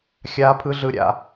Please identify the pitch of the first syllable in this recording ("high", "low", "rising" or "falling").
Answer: high